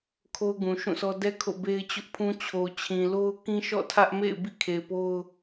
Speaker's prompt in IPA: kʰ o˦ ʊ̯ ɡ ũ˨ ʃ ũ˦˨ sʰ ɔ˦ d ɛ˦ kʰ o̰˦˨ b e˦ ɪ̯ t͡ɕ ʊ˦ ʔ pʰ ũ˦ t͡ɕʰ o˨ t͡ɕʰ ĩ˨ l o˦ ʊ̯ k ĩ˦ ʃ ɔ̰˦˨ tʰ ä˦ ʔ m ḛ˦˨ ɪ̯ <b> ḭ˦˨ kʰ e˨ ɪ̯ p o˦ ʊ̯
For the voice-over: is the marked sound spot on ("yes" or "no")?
yes